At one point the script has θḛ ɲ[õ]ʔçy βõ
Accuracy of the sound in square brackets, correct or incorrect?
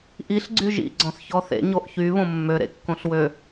incorrect